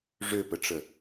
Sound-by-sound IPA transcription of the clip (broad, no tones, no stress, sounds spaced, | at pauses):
ʐ ø p ə ʈ͡ʂ ə